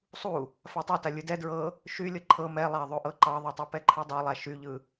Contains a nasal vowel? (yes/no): no